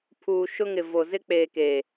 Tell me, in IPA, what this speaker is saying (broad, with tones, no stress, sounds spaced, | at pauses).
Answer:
pʰ uː˨ ʃ ʊ˦ ŋ ɪ˨ v o˨ z ɪ˦ k͡p eː˨ k eː˨